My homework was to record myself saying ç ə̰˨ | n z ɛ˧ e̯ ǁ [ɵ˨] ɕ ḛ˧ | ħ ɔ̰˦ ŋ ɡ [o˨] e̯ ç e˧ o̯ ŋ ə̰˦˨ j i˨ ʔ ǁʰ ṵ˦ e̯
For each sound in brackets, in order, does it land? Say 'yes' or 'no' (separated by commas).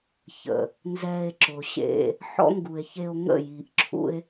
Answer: no, no